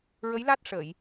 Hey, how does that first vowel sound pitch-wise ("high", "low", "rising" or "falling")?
rising